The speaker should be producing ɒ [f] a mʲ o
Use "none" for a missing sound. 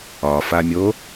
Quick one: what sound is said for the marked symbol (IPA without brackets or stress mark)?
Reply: f